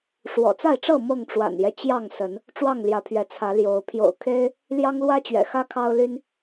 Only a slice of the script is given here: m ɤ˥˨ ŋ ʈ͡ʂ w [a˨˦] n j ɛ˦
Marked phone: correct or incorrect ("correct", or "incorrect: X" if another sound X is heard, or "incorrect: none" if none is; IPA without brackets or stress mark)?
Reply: incorrect: a̰˨˩